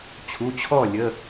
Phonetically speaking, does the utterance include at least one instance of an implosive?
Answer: no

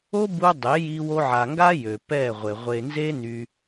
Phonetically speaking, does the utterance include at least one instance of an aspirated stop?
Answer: no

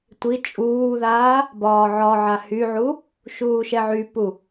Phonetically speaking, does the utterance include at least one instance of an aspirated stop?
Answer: no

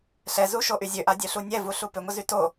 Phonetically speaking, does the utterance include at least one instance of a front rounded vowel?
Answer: yes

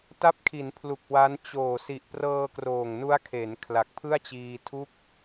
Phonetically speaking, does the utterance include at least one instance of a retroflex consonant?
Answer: no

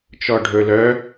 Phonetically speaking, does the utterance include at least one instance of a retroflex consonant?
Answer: yes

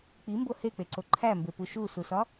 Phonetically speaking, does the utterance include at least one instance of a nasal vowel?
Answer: no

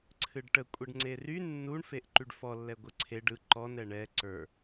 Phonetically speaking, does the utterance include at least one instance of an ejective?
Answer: yes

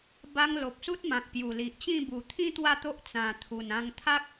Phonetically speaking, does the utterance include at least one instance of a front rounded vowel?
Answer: no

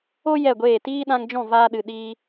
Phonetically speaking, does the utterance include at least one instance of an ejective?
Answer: no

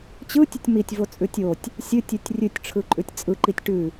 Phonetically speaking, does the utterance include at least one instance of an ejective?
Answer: yes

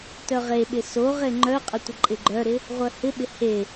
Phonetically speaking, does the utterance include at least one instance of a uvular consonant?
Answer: yes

